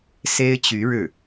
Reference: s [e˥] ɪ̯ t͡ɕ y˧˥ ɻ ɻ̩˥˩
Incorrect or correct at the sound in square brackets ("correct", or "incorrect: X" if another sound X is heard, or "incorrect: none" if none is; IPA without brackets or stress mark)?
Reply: correct